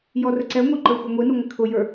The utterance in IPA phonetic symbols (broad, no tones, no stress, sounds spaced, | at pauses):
j ɔ r ə ǀ ɛ ŋʷ ʌ ǃ ə˞ xʷ ʌ ŋʷ i n u ŋʷ ɪ kʰ ʊ j ə˞